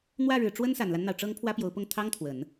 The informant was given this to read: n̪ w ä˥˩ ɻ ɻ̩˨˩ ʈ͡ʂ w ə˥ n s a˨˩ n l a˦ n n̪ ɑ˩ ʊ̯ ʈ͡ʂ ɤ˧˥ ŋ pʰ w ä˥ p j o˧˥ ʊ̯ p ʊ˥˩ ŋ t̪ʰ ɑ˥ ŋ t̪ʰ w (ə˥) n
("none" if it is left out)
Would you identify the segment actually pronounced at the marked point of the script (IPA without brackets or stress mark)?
ə˨˩˦